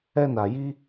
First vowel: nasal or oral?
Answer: oral